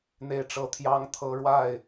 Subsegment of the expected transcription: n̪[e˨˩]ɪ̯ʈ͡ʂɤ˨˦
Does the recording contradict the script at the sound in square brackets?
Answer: no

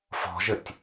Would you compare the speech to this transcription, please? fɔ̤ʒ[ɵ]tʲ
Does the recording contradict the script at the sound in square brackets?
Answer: yes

